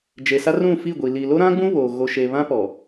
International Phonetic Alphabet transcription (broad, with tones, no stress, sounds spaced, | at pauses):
d͡ʒ e˨ s a˦ r ũ˦˨ f i˦˨ ɡʷ i˨ l i˨ l o˦ ɾ ã˦ ɡ͡b ũ˦ β o˨ ɣ o˨ ʃ e˨ β ã˦ p ɔ˨